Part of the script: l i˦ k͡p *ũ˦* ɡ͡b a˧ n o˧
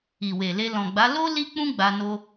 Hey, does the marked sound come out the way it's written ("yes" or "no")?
yes